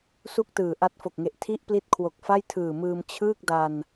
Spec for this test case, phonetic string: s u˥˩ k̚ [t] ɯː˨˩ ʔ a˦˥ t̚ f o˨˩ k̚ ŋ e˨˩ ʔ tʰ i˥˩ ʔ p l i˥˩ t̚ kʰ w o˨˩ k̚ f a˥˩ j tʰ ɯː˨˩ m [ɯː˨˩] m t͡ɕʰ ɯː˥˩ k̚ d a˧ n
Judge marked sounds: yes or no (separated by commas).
yes, no